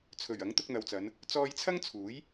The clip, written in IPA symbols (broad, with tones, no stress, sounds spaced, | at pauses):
t͡sʰ ɵ˨˩ ɥ ɐ˨˥ ŋ t̪ ʊ˧ k̚ n̪ ɐ˨ w t͡s ɐ˨˧ n | t͡s ɔː˧ j t͡sʰ ɐ˥ ŋ t͡sʰ uː˨˥ j